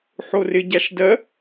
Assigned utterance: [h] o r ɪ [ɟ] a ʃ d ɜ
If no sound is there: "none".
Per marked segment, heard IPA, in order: ħ, ɟ

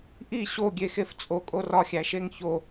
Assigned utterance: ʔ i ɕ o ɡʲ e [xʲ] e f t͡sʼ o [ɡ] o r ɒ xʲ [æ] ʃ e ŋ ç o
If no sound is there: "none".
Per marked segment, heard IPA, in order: x, kʼ, æ

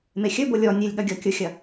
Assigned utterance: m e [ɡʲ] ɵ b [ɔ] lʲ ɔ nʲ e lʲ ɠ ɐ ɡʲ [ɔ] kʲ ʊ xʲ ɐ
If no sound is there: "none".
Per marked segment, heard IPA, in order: xʲ, o, ɔ

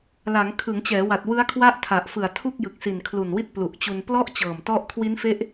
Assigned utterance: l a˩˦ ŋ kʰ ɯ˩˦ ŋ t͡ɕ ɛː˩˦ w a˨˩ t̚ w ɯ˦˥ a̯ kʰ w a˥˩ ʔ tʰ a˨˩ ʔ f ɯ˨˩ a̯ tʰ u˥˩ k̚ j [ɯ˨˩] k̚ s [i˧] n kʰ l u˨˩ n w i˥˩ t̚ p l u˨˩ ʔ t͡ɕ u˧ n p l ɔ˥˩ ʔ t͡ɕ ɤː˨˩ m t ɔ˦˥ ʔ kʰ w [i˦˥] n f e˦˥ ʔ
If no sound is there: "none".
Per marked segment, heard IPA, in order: ɯ˨˩, i˨˩, i˦˥

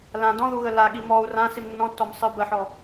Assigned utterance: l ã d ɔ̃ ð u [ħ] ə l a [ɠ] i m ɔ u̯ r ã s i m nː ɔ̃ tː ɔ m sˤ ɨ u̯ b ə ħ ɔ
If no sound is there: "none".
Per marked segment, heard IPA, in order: ɣ, ɠ

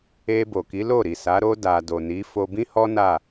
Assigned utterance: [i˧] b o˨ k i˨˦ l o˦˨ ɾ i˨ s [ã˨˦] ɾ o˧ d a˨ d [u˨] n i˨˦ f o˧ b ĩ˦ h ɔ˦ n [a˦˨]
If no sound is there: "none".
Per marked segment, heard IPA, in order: e˧, a˨˦, o˨, a˦˨

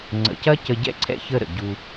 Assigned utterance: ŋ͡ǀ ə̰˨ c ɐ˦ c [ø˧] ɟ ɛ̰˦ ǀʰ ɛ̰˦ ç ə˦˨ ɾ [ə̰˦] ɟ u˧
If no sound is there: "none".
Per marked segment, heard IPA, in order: ə˧, ə̰˨

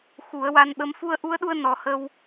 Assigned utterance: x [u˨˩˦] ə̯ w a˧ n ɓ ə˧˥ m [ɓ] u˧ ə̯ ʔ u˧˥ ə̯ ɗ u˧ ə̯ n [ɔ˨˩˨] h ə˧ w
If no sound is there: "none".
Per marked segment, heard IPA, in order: u˨˩˦, f, ɔ˨˩

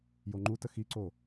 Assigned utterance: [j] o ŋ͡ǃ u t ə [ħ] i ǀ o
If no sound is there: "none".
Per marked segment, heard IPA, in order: j, x

